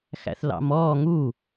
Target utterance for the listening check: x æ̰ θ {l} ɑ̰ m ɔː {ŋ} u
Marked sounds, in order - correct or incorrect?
correct, correct

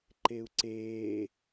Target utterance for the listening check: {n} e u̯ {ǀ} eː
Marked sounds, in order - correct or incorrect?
incorrect, correct

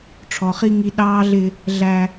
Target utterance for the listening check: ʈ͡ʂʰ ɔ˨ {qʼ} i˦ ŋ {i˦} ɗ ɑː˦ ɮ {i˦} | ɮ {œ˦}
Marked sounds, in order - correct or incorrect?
incorrect, correct, incorrect, incorrect

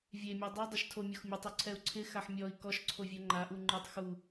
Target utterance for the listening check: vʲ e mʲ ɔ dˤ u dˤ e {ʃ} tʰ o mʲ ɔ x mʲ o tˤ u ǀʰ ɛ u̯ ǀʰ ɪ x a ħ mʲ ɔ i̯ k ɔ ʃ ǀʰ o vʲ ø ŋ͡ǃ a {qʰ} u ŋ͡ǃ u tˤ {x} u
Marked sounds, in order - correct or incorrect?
correct, incorrect, correct

